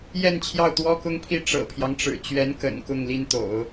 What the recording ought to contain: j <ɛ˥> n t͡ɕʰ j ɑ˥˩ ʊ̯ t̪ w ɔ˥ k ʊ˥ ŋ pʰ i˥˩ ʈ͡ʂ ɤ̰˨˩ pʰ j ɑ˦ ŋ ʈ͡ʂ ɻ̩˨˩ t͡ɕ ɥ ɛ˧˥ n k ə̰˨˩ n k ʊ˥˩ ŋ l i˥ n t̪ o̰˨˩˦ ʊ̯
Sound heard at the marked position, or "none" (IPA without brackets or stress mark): ɛ˥˧